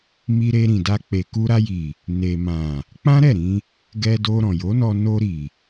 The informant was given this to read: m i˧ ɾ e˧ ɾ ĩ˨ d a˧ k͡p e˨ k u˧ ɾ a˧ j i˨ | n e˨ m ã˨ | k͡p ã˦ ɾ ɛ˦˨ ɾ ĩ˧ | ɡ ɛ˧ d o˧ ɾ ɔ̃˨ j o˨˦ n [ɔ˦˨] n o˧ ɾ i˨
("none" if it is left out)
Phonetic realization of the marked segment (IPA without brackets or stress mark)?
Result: ɔ˧